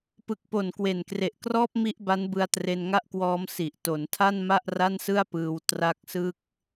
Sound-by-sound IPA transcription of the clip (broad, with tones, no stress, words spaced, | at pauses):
pɯ˨˩k̚po˨˩n kwe˨˩nkre˨˩ʔkrɔː˥˩p̚ mi˥˩ʔba˦˥nbɯ˧a̯ tre˧nŋa˥˩ʔkwɔː˦˥m si˨˩ʔ to˩˦ntʰa˥˩n ma˥˩ʔra˥˩nsɯ˥˩a̯pɯː˧w tra˦˥k̚sɯ˥˩k̚